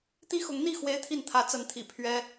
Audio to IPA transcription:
t̪i˥xʊ˧˥ŋn̪i˥˩ xwe˥ɪ̯t̪ʰi˥˩n t̪ʰä˧˥t͡sə˧˥nt̪ʰḭ˨˩ pʰɥɛ˥

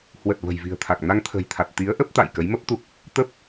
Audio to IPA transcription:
hwə˨˩t̚ və̤˨˩jvi̤˨˩ə̯t̪ʰa˨˩k̚ na˧ŋt̪ʰə̤ː˨˩jt̪ʰa˨˩t̚ t̪i˨˦ə̯ʔə˦˥p̚t̪a̰˧˨j kə˨˦jmə˦˥p̚ t̪u˦˥k̚ | t̪ə˦˥p̚

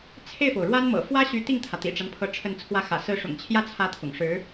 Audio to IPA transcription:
t͡sʰe˥˩ɪ̯fo˩ʊ̯ɻwa˥nmɤ̰˨˩ fwä˥ɕy˧˥ t̪i˥˩ŋt̪ʰä˩ t̪ḭ˨˩ʈ͡ʂa˦npʰɤ˧˥ ʈ͡ʂʰə˥˩n t͡sʰwä˧˥xä̰˨˩ sɹ̩˧˥ʂʊ̰˨˩ŋt͡ɕʰjä˥˩t͡sʰä˧˥ t̪ʰʊ̰˨˩ŋʂɻ̩˧˥

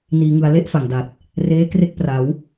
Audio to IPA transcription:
niː˩˦ŋɯ˩˦a̯ le˥˩ʔfa˨˩ŋda˨˩t̚ | reː˦˥kre˥˩k̚pra˩˦w

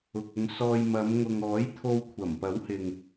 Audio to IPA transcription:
ʊ˨k̚ʊ˧ŋsɔː˧j mɐ˨˧mŋʊ˨ŋɔː˨˥j t̪ʰo˧wkʷʰɐ˨˩mpɐ˨˥w hɪ˨ŋ

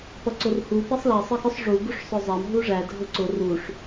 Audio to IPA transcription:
pʌǀʊrhu pisˤlæ sˤəxʊsˤ ʐu ɡuʂsˤʊzˤɑm ɦuʐæ dʱʊǀʊ ruʂ

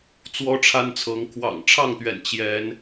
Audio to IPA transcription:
t͡swɔ˦ʈ͡ʂʰa˦nt͡sʰɤ˨˦ŋ kʰwɑ̰˨˩ŋʈ͡ʂʰɑ˥˨ŋt̪ɥɛ̰˨˩n t͡ɕjɛ˨˦n

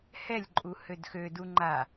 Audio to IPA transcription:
hɛlʲǃʼu hødxødu ŋ͡ǃa

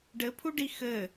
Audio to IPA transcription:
ɖɘpʰuɖi xɘ

